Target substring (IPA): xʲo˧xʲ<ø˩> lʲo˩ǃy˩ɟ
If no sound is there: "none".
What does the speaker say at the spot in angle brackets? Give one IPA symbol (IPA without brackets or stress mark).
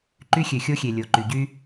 e˩